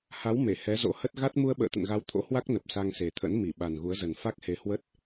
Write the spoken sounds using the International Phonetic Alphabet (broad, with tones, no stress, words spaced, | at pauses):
ha˨˦w me˧˩hɛ˨˦zo̰˧˥hə˦˥t̚ ɣa˦˥t̚ mu˧ə̯ɓə̰ː˧˨t̪ə̰˧˨nɣa˨˦w t̪ʰo̰˧˥hwa˦˥k̚nə˨˩p̚ sa˧ŋse˨˩t̪ʰə̰˧˥n mi˧˩ɓa˨˩nɣu˨˦ə̯zə˨˩n fa˦˥k̚he˨˦hwə˦˥t̚